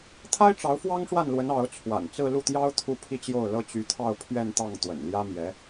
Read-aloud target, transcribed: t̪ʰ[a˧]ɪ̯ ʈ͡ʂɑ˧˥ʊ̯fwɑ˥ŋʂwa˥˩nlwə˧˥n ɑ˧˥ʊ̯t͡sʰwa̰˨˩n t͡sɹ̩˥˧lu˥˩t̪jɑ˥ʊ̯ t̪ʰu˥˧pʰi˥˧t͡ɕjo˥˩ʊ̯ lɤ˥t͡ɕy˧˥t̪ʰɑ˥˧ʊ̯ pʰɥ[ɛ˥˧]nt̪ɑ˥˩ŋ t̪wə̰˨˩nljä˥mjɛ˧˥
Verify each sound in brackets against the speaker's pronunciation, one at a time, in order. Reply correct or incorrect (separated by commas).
incorrect, correct